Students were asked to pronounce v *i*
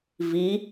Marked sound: correct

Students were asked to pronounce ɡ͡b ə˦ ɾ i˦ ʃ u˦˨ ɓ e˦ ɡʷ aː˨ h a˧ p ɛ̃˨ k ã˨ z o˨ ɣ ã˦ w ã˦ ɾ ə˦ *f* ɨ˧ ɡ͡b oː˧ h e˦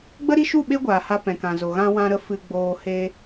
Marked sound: correct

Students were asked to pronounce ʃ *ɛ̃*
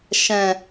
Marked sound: correct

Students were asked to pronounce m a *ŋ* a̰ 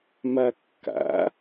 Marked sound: incorrect: kː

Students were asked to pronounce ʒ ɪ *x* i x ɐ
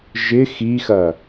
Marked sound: correct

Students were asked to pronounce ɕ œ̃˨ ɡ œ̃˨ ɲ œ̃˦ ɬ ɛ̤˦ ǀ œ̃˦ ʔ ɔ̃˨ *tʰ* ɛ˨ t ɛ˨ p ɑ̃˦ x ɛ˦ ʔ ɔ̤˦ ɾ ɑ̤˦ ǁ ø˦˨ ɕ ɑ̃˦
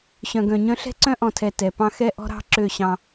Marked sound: correct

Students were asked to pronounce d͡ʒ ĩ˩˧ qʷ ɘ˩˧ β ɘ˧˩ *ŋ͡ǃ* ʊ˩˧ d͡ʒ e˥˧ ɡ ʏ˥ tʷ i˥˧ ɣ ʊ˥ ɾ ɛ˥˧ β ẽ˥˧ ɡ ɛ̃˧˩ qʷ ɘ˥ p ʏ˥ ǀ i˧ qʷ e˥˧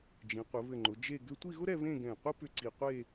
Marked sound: correct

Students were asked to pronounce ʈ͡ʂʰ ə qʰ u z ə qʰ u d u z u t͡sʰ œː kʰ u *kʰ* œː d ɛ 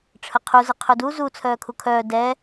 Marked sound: correct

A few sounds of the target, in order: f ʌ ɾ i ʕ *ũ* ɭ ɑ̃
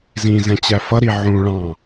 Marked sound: correct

